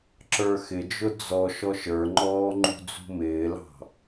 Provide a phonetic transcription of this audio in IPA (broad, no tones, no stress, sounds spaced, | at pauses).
ǁ ə˞ x ɪ d͡ʒ ʊ d͡z ɔ ʃ ɔ ʃ ə˞ ŋ͡ǃ ɔː ŋ͡ǃ ṳ d͡z ṳ m ɪː l ɑ̤